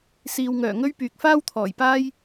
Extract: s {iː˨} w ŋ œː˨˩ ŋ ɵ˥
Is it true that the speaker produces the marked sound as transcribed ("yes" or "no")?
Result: yes